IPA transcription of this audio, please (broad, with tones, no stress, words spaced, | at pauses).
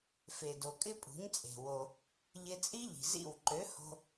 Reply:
fe˨do˨kʼɪ˦ pʼṳ˨˦ɲt͡sʼe̤˨ wo˧ | ʎɪ˧t͡sʼi˦ ʎi̤˨zḭ˦˨w ǃø˨˦ho̤˧